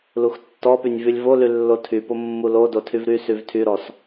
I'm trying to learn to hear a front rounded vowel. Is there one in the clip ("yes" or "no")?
yes